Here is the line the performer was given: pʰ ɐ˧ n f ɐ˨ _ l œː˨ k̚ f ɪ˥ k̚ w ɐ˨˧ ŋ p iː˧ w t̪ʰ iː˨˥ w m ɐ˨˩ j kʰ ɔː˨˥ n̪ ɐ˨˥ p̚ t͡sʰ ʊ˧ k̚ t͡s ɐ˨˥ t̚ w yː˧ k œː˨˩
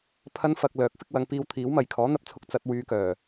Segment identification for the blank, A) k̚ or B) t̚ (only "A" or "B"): A